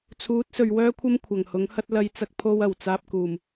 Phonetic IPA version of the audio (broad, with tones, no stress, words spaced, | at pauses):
t͡sʰuː˨˥t̚sɵ˨ɥwœː˥kʷʰɐ˥m kʷʰɐ˨˩ŋhʊ˨˥ŋhɐ˥t̚ lɐ˧jt͡sɐ˧k̚ pʰo˥wɐ˨˩w t͡saː˧p̚kuː˨˩m